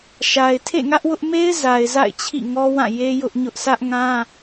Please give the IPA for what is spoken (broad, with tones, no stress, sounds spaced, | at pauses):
ʃ a˨ ɪ̯ tʰ ḛ˦˨ ŋ ä˦ ʔ w ʊ˦ ʔ m e˦ ɪ̯ z a˨ ɪ̯ z a̰˦˨ ɪ̯ t͡ɕʰ ḭ˦˨ ŋ ɔ˦ w ã˦˨ j e˦ j ʊ˦ ʔ ɲ ʊ˦ ʔ sʰ ä˦ ʔ ŋ ã˦